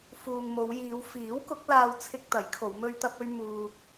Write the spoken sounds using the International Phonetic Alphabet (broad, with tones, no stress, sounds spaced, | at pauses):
f uː˨ ŋ m o˨˧ w j iː˨˧ w f iː˨˥ w k ʊ˨˥ k̚ l aː˧ w t͡sʰ ɪ˧ k̚ t̪ ɐ˨˥ j kʰ o˨˧ w m ɵ˧ ɥ t̪ ɐ˧ p̚ ɵ˧ ɥ m uː˧ t̚